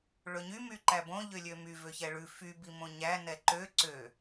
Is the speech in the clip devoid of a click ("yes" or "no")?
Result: no